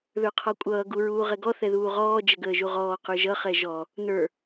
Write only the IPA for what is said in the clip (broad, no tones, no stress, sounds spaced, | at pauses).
ð ə˞ qʰ ɔ kʷʼ ʌː ɡ u ɹ uː ʁ ɛ ɡ ɔ θ ɛ ð uː ʁ ɔː d͡ʒ ə ɡ əː ʒ u ʁ ɔː q ə˞ ʒ ʌ χ ɛ ʒ ɔ | n ə˞